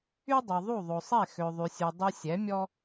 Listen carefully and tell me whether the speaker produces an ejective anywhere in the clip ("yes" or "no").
no